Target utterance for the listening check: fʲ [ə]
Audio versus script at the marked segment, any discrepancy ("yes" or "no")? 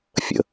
yes